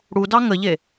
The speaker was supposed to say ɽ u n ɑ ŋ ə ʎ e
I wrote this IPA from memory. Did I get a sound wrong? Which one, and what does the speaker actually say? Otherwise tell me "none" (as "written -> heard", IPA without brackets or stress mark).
n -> d